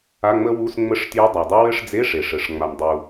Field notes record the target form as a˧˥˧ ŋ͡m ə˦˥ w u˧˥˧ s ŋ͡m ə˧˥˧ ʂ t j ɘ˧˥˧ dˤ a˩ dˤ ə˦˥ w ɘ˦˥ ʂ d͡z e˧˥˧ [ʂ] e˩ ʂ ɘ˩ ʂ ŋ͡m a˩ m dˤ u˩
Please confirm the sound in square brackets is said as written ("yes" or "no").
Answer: yes